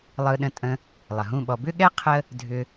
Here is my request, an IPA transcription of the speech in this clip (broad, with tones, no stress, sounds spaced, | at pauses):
lˠ ɯ˧ ɗ ə̃˧ tʼ ə̃˧ | lˠ ə˨ ɦ ũ˦˨ ɓ ɔ˧ b ʏ˦ ɠ ɛ˦ qʰ ə˦ | dʱ ʏ˧